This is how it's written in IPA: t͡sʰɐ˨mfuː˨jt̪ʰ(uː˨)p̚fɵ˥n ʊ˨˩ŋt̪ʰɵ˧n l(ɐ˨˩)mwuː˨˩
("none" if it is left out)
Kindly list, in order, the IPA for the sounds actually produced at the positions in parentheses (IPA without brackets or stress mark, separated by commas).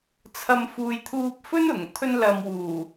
uː˧, ɐ˨